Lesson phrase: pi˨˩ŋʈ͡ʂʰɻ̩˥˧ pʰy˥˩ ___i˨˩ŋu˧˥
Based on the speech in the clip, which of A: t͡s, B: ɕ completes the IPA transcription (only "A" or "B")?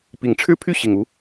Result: B